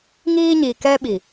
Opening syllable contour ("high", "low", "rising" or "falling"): high